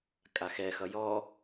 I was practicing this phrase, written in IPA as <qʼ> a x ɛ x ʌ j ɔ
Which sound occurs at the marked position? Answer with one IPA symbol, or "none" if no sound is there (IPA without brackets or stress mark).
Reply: kʼ